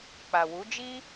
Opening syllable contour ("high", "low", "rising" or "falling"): low